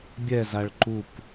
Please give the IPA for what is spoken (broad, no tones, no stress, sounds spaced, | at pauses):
bʲ ɛ z a ɭ ǃ u p